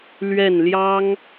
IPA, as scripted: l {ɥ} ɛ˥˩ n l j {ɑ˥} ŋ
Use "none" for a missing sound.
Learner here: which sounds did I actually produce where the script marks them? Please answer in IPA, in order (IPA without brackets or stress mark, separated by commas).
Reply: ɥ, ɑ˥